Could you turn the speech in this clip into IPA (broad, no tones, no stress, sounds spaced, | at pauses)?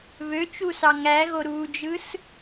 β ø t͡ʃ u s ɑ ŋ æ ɣ o ɾ uː d͡ʒ ɯ s